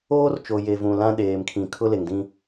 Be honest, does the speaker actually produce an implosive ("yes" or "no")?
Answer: yes